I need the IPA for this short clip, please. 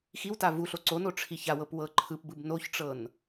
xiwta vu ɬoǀono ʈ͡ʂʰiçawɤp wɤǃʰɯpbɯb noçʈ͡ʂɤn

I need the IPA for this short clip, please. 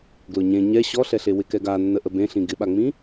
ɡlʊɲẽ ɲɛ ɕɔɬɛɬe wɪkɛɡa nːəʔəbẽɬĩ ɡɪɓaŋ͡mĩ

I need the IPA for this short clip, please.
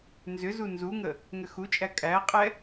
nzʏzu nzuŋə | ŋʏxut͡ʃʼæ kʼæqʼɛ

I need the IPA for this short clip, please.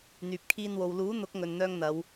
n̪yː˨p̚kʰiː˧nwo˨w luː˨˥ n̪ʊ˨˥k̚ŋɵ˨nn̪œː˧ŋ n̪ɐ˨˧w

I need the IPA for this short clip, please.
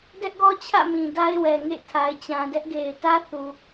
dɛ˦ʔɡɔ˦t͡ɕʰä̰˦˨mĩ˨ da˦ɪ̯wɛ˨ŋḛ˦˨ tʰa˨ɪ̯t͡ɕã˨dɛ˦ʔɡe˨ɪ̯ tä˦θu˨

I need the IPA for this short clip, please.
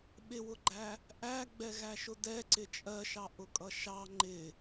ɓɪwʊɡ͡ǃæ | ʔæɡ͡bɛɣæʃʊ dɛǀɪ t͡ʃʼɜʃɑʔʊkʼʌ ʃɑ ŋ͡ǃɪ

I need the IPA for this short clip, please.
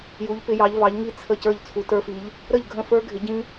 ju˨˥ʎpɪ˨˥jɑ˨˥ʎ vɑ˨˥ʎŋi˥˧ t͡sʰə˥˩ cə˞˥˩ʎt͡sʰu˨˥tə˞˦˥fi˨˥ʎ | ɾə˥˩ʎɡʱə̃˥˩fə˞˦˥ ɡʱɪ˨˥ɟĩ˦˥

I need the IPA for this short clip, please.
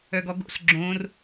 œɡɔɡo̰s ɡ͡ǁõr

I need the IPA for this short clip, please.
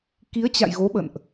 ki˨˦ə̯t͡ɕa̰˧˨j ɣo˨˦ɓə̰˧˨nʔ

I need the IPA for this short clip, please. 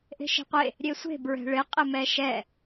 ʔe̤ʃe̤qʷe | ɾʲesʷe̤ bɹɛ̤ɭɪ qʼɪmɛʃɛ

